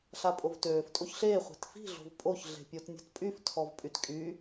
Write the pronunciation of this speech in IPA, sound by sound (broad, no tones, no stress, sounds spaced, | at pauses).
ɬ a pʼ o v t øː f tʼ o ç ɬ eː χʷ e̤ t f i̤ ɮ o̤ v pʼ o ç ɮ e̤ pʲ o t nʲ o̤ t pʼ y f tʰ ɔ v pʼ y t kʼ y